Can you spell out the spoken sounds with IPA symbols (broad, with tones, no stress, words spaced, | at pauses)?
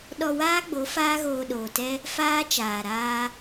ɗɔ˧waː˦ɡ͡bo˨˦ faː˦ɣoː˧ɗoː˨tɛ˦ | faː˦t͡ʃaː˨ɾaː˧